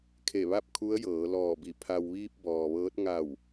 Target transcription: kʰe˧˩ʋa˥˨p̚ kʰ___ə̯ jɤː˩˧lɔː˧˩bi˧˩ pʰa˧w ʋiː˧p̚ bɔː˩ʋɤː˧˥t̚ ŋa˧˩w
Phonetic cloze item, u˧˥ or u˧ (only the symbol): u˧˥